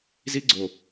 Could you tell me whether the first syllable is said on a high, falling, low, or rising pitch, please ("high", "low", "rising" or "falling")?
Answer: high